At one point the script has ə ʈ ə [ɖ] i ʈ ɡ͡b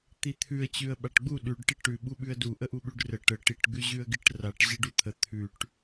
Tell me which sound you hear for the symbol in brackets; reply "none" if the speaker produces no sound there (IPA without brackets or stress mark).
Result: ʈ